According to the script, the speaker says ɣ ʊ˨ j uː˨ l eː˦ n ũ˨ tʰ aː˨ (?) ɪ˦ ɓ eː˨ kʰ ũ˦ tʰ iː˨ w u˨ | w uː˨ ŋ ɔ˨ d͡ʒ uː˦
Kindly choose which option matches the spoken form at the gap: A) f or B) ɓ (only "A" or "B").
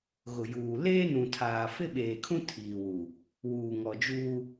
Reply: A